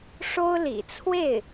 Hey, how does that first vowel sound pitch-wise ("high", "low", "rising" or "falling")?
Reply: high